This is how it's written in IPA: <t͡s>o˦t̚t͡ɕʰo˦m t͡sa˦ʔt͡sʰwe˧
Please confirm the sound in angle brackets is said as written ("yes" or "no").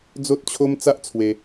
no